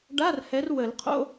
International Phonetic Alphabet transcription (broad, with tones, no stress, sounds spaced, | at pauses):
ɖ a˧˥˧ r h ɛ˨˦ r w ə˨˩˦ l qʰ o̰˧˥˧